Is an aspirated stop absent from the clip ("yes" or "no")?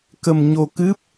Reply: yes